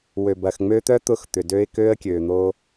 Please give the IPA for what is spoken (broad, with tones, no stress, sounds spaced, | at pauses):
w ø˨ b ɐː˨ x ŋ͡m øː˦ t̪ œ˦ t̪ ʊ˦˨ x t̪ ʏ˨ d ø˦ ɪ̯ k øː˦ ə̯ kʲ øː˨ n̪ oː˦